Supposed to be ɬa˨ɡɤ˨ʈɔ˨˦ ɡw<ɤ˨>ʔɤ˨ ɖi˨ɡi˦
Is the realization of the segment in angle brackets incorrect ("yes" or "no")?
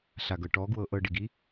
no